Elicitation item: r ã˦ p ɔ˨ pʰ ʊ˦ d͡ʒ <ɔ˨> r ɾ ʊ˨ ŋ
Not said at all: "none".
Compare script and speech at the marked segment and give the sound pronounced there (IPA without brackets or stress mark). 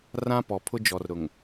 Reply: ɔ˨